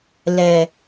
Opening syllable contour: low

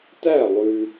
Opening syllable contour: falling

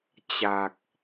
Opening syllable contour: low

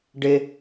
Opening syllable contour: low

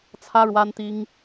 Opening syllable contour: high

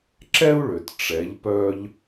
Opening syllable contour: high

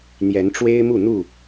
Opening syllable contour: rising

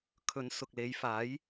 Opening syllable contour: rising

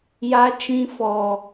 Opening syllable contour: high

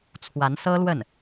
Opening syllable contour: rising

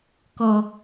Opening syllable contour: high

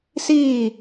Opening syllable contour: falling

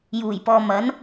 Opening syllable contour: low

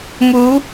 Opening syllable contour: rising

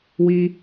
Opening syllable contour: high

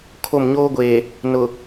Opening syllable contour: falling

